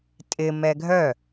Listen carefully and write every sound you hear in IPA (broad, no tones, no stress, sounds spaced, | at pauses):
tʼ ɪ m ɛ ɡʱ œ